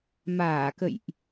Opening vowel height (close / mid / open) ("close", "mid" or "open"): open